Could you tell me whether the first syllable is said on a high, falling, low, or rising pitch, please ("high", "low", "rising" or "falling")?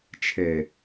low